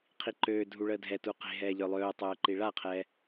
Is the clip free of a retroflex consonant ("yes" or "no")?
no